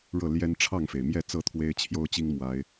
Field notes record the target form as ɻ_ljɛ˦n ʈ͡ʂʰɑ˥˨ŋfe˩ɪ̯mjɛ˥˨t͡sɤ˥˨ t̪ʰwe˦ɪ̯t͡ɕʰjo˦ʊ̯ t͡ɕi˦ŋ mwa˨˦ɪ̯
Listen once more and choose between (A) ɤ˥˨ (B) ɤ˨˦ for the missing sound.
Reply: A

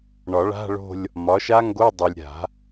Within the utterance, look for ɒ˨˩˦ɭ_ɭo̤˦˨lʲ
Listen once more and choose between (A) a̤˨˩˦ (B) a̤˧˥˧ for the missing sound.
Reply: B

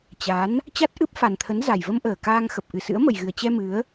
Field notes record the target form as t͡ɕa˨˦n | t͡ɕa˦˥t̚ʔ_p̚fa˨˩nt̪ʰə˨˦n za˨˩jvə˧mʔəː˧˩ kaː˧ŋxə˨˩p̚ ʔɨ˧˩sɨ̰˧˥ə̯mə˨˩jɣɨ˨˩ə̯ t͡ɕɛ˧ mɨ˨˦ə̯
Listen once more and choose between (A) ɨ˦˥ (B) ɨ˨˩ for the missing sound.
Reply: A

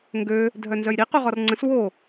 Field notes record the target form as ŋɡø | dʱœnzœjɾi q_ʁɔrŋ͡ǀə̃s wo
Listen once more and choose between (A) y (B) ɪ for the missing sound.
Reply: A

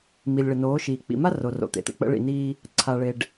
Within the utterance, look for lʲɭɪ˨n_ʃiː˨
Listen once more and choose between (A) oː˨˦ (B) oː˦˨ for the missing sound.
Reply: A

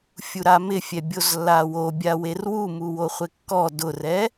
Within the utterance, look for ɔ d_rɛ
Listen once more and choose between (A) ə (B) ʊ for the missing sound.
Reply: B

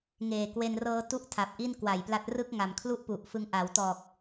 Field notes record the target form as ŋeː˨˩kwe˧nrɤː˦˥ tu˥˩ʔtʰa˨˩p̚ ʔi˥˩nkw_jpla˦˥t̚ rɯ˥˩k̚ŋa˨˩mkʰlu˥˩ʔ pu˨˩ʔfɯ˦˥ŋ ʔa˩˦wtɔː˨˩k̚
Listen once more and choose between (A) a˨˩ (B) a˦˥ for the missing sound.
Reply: A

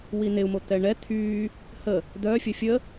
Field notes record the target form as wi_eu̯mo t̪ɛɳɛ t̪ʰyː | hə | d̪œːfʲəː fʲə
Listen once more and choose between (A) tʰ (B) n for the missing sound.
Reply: B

